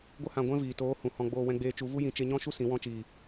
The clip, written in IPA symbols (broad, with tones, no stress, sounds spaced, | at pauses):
ɡʷ ə˦ h ã˧ ɡʷ ɛ̃˦ v iː˨ t oː˨˦ h ũ˨ h ɔ̃˧ ɡ͡b oː˧ w ɛ̃˧ ɡ͡b eː˧ t͡ʃ u˨˦ v u˦ j ĩ˨˦ t͡ʃ e˧ ɲ ɔ̃˦ ʃ u˦ s ĩ˨˦ w ɔ̃˧ t͡ʃ iː˨